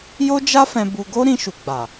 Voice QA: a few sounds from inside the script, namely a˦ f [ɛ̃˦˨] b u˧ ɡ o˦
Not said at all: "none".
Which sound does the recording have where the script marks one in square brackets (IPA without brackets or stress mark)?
ɛ̃˧